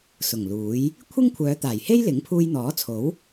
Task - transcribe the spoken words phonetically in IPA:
s ʊ˨˩ ŋ l uː˨˥ j | kʷʰ ɪ˥ ŋ kʷʰ œː˨˧ t̪ aː˨˩ j h e˥ j l ɪ˨˥ ŋ pʰ uː˧ j n̪ ɔː˨˥ t͡sʰ o˨˥ w

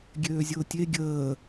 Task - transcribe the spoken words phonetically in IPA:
ɡʲ øː zʲ ʊː tʲ e ɡʲ əː

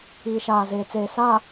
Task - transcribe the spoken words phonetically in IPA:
iː˨ ʃ aː˨ z eː˨ t͡s eː˨ s aː˨

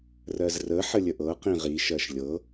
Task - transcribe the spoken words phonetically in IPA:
r ɜ z r ə ħ ə lʲ ə ʔ ɤ q ĩ ʁ i ʃ ɜ ʃ lʲ ɤ

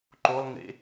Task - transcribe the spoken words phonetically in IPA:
ǃ o lˠ ŋ ḛ

